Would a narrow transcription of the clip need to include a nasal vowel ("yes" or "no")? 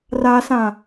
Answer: yes